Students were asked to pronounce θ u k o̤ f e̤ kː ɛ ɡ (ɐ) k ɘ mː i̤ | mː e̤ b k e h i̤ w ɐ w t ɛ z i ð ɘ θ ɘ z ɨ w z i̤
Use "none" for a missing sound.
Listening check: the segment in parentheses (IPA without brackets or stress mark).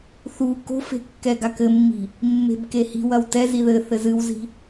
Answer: a